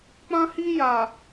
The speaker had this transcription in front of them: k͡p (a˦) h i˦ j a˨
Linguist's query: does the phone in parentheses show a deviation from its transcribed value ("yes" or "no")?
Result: yes